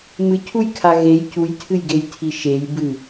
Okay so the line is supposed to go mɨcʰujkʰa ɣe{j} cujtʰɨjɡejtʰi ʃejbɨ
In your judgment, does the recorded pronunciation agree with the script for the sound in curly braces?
yes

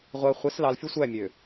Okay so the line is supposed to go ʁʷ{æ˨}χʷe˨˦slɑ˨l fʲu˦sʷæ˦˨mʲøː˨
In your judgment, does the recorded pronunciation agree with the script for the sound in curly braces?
yes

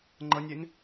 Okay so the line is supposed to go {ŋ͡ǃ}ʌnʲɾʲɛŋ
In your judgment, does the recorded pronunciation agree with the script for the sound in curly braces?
yes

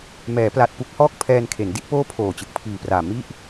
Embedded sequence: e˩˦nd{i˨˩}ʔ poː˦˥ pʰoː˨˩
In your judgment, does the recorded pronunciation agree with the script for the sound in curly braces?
no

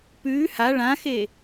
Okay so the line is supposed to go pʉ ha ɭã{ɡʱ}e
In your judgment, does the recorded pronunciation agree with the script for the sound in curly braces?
no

